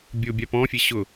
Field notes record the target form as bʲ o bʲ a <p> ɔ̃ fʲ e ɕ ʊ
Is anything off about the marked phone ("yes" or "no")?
no